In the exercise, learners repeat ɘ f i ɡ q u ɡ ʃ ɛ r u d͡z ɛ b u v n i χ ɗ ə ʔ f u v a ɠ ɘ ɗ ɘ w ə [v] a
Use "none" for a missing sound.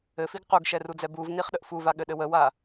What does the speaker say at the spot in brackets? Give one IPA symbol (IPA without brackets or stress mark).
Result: w